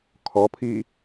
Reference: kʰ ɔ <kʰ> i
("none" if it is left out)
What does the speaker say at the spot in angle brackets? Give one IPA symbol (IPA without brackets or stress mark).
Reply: pʰ